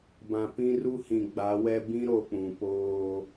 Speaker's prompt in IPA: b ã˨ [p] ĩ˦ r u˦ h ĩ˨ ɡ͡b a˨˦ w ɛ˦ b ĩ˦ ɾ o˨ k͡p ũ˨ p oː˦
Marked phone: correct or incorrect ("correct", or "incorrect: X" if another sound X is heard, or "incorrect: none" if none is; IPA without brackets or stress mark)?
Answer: correct